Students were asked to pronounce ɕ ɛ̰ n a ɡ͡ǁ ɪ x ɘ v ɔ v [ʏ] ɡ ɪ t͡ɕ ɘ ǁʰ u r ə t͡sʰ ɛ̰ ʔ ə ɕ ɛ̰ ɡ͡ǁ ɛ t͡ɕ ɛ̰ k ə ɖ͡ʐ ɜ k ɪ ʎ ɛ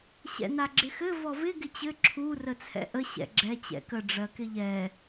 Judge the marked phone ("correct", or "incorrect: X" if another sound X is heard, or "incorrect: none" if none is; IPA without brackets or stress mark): incorrect: ɪ